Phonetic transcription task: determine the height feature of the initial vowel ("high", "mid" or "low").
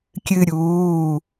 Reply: high